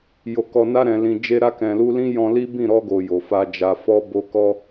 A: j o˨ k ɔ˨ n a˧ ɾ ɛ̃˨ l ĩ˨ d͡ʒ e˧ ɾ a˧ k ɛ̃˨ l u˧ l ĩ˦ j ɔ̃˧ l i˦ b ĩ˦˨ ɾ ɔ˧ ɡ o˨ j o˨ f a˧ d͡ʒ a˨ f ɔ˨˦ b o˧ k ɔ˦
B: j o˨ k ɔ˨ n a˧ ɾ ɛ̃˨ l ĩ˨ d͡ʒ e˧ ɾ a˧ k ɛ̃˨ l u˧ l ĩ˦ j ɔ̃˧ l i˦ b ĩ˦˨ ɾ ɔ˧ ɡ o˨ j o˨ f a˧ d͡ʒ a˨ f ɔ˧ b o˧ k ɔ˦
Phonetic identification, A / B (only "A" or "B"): B